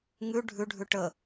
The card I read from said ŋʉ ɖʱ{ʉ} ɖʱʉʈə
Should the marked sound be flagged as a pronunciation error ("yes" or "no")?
no